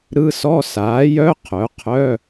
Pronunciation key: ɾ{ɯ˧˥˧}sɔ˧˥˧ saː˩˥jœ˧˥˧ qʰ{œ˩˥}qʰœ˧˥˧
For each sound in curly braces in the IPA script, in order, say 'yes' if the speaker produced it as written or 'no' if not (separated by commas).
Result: yes, yes